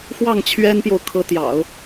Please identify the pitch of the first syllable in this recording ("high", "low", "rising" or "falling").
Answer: falling